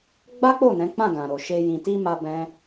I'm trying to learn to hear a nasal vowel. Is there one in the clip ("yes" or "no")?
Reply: yes